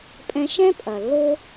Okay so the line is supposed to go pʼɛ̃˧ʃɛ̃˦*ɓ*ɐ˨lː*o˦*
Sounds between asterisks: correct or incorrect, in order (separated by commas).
incorrect, correct